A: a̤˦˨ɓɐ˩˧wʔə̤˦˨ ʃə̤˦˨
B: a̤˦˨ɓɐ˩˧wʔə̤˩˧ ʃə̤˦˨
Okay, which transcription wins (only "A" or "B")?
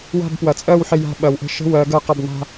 A